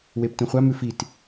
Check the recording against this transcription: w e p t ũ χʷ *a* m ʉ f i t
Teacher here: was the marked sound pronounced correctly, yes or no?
yes